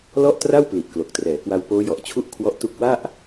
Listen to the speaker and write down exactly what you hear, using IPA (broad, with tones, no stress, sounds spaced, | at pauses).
l ɔ˥˩ ʔ t r a˥˩ w p l i˨˩ ʔ k l o˨˩ k̚ t r ɛː˩˦ k w a˧ w p oː˦˥ j ɔ˨˩ ʔ t͡ɕʰ u˦˥ ʔ kʰ w ɔ˦˥ ʔ t u˦˥ k̚ w a˥˩ ʔ